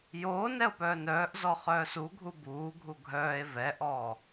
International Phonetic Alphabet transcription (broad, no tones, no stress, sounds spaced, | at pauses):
j o n ɛ o̯ p œː n œː ʔ z ɔ χ œː s u ɡʱ u b uː ɡʱ u ɡʱ œː e̯ v ɛ ʔ ɔː